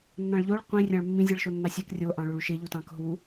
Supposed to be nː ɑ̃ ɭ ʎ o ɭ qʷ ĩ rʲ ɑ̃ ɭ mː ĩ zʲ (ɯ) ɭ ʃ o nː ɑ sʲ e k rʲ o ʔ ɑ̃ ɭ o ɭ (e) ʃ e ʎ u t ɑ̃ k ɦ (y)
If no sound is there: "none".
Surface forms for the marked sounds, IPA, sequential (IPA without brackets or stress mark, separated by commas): ɯ, y, u